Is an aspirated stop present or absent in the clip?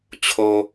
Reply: present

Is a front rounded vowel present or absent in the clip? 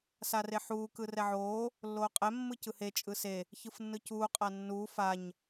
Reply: absent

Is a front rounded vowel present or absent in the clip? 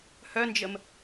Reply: present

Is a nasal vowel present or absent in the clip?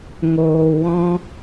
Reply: present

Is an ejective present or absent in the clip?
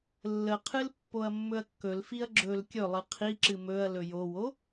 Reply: absent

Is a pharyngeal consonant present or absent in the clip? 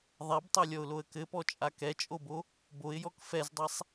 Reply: absent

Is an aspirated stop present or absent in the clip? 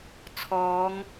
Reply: present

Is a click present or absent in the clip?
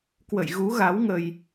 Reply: absent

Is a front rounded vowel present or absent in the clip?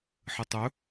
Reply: absent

